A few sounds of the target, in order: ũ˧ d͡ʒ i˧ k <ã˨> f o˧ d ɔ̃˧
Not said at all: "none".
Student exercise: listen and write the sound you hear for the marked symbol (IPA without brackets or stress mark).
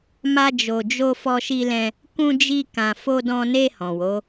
ã˧